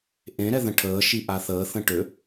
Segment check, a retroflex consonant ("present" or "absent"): present